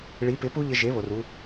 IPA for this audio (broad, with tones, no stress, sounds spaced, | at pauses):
ɭ i˩˥ p ɪ˩˥ p u˥ ʎ ɪ˧ ʒ e˩˥ β o˩ r u˧